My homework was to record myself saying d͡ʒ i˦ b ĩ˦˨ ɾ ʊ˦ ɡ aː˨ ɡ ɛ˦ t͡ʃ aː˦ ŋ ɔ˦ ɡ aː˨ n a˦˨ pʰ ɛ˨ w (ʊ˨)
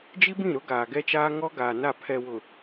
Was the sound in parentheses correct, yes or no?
yes